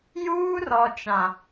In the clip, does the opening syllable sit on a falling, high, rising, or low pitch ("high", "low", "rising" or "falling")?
high